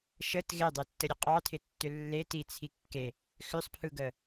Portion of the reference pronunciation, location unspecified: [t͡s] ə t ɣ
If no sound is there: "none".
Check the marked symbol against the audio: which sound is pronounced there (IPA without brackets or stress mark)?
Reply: ʃ